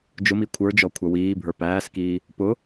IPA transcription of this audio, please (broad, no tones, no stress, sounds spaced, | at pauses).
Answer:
d͡ʒ ʊ m i kʷʰ ə˞ d͡ʒ ɔ kʷʰ ʌ w iː bʱ ə˞ p æː s k iː | p ʊ